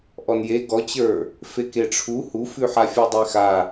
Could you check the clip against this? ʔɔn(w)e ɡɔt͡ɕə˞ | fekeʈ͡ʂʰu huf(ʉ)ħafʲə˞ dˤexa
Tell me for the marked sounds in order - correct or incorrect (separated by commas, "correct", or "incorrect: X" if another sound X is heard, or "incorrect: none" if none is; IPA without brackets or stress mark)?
incorrect: j, correct